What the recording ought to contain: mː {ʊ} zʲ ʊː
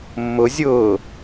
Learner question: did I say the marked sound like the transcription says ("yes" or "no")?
yes